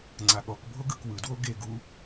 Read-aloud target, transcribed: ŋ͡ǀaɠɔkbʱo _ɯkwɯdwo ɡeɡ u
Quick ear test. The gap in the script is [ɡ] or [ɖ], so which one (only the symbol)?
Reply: ɡ